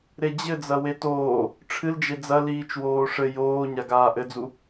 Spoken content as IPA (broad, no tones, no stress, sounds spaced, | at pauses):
ɾ e d͡ʑ ɘ d͡z ɐ w e t oː | ʈ͡ʂʰ ɨ l d͡ʒ e d͡z ɐ l iː t͡ʃ w oː ʂ ɘ j oː ɲ a ɡ aː ʔ ɘ d͡z u